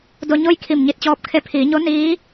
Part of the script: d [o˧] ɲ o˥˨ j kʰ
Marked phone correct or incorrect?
correct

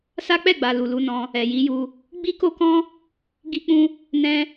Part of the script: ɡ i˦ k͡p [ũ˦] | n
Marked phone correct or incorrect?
correct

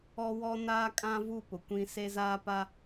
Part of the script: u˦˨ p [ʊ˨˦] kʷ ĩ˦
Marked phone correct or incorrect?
incorrect: ʊ˨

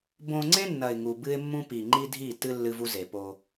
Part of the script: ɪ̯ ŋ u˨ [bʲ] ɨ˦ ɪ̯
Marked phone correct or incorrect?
incorrect: b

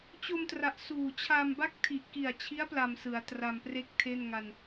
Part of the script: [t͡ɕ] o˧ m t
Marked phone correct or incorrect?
correct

